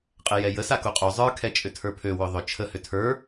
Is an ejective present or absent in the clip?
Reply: present